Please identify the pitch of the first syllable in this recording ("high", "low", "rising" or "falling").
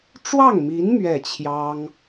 falling